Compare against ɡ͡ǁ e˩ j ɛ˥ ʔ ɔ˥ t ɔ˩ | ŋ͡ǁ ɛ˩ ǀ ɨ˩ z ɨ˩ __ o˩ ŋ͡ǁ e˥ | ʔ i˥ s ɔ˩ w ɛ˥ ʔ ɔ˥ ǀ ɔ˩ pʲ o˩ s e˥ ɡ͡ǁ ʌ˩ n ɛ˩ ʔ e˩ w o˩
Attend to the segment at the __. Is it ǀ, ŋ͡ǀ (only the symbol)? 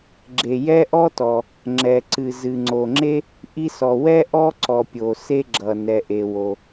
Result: ŋ͡ǀ